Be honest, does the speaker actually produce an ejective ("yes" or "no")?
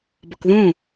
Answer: no